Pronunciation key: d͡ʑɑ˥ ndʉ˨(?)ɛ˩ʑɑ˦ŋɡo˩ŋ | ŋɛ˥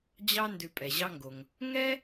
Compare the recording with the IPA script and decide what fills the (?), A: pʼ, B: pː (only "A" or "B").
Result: A